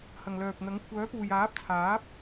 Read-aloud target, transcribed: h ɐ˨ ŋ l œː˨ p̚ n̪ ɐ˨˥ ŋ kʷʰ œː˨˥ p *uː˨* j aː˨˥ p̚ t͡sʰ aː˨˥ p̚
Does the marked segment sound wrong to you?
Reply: no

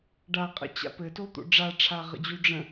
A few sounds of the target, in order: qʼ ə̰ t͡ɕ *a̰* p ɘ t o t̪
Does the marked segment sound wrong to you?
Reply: no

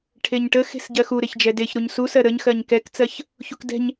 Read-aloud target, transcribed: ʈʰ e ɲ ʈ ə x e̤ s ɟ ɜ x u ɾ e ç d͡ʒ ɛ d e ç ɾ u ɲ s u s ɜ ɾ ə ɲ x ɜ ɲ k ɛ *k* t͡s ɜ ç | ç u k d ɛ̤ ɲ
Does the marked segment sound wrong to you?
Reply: no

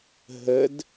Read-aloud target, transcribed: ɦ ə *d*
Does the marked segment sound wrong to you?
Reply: no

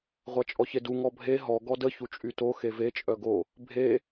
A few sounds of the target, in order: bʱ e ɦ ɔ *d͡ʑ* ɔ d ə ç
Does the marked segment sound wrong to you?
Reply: yes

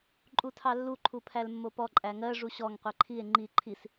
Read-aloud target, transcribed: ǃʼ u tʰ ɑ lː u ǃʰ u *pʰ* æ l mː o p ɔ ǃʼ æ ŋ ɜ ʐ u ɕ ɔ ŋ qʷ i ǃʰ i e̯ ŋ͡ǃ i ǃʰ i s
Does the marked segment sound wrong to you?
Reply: no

